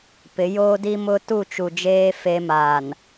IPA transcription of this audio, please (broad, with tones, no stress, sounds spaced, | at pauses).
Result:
p ɪ˨˦ j oː˦ d i˦ m ʊ˦ t u˦˨ t͡ʃ u˨ d͡ʒ eː˦ f e˦ m a˨ n